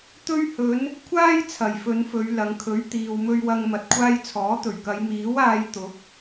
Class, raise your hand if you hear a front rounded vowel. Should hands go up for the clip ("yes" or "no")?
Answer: no